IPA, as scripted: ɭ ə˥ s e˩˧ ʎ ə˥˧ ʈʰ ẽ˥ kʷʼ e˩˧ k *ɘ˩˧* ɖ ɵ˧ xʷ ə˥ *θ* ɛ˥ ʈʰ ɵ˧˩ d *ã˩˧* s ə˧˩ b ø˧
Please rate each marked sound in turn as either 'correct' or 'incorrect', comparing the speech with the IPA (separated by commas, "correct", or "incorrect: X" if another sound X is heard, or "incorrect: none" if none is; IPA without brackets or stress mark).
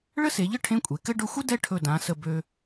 incorrect: ɘ˥, incorrect: d, correct